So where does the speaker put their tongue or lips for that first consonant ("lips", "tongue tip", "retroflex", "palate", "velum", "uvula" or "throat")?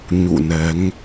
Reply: palate